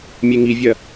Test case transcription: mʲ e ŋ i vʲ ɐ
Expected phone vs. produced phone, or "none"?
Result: none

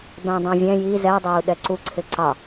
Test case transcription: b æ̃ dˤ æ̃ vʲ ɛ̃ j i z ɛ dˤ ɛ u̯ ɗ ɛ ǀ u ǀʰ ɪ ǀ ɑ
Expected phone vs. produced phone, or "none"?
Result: none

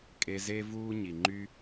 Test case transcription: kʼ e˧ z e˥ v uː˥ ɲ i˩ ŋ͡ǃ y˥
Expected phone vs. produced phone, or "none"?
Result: none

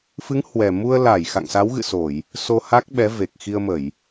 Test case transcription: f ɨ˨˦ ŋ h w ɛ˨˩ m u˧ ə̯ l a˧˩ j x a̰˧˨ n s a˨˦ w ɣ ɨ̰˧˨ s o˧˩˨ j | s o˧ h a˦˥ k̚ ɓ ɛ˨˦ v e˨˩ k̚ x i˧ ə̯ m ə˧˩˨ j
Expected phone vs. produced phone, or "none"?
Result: n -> ŋ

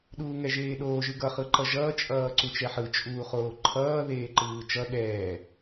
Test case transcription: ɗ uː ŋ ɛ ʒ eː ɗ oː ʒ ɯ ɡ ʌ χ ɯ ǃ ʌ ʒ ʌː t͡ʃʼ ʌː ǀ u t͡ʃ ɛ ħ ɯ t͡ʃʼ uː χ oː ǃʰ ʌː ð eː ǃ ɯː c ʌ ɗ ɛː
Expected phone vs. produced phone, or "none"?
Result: c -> t͡ʃ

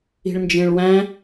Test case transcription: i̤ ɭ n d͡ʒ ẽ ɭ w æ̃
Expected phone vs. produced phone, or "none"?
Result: none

